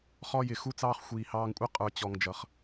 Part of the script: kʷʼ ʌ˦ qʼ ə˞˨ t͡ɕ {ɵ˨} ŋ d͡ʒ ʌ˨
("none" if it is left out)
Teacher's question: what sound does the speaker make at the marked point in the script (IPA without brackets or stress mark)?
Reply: ɔ˨